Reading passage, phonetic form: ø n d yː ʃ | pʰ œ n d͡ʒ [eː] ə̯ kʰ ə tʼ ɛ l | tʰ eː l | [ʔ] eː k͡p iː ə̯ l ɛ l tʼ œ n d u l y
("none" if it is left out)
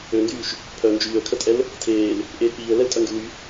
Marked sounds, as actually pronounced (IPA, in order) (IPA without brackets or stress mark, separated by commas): yː, ʔ